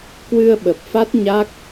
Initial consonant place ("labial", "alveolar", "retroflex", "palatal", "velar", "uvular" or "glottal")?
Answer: velar